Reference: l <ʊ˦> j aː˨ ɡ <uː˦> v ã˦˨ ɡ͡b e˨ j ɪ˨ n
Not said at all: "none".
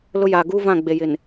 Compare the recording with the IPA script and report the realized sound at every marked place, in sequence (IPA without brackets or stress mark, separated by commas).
ʊ˦, uː˦